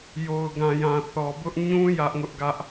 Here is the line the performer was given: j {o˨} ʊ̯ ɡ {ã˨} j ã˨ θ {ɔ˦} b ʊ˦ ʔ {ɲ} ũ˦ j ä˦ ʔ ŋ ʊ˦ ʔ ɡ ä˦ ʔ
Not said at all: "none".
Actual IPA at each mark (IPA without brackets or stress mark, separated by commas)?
o˨, ã˨, ɔ˨, ɲ